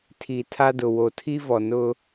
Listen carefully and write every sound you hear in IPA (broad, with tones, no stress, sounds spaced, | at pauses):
tʰ i˨ tʰ a˦ d ʊ˨ w o˨ tʰ i˦ v ɔ˨ n ʊ˦